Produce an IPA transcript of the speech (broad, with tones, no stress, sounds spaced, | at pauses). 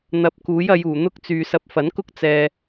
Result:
n̪ ɐ˨˥ p̚ k uː˨˥ j ɐ˨˧ j uː˨˩ n̪ ʊ˧ k̚ t͡s yː˨ s ɐ˧ p̚ f ɐ˨˥ n k ʊ˥ k̚ t͡s ɛː˧